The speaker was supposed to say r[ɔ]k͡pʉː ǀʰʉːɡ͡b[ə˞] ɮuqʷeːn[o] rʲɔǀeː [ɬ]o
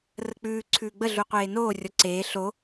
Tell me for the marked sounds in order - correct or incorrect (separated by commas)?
incorrect, incorrect, incorrect, correct